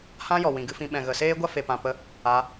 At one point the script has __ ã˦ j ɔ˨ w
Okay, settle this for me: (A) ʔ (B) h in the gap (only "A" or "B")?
B